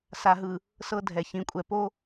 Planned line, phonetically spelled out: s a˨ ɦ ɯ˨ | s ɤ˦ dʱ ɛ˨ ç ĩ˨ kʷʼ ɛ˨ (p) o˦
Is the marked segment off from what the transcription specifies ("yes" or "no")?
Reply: no